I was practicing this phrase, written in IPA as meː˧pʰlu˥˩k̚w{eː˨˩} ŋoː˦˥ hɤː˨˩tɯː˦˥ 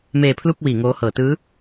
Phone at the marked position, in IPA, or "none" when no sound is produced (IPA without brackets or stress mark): iː˨˩